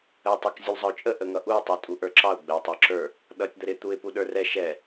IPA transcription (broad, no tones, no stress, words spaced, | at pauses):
əɪ̯tˤɪk zʲulzˤəʊ̯t͡ʃʼə ʔəŋʌʔuɪ̯ tˤə˞tʼuʔə˞ǁɑʊ̯ ɡ͡bɛʊ̯tˤə˞ǁə˞ | ɗʌtʲ d̪əɾɪ t̪uɪ̯puɗə˞rɛ ʃɛ